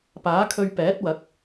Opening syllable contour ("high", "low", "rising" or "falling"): rising